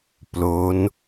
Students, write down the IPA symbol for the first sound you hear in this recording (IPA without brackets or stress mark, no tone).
p